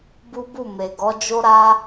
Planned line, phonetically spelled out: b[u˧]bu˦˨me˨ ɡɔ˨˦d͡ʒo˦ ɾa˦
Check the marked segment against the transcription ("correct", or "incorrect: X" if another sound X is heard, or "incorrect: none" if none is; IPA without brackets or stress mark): incorrect: u˦